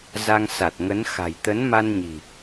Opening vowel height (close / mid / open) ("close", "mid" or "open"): open